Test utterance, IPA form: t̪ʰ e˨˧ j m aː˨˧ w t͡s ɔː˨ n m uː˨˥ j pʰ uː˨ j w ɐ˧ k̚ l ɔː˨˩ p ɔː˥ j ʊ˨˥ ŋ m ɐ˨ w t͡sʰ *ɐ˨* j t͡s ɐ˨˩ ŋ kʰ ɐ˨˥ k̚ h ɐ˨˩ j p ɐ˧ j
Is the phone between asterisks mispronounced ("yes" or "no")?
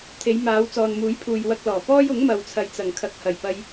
no